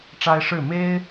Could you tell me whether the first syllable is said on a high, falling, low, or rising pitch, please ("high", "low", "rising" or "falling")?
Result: high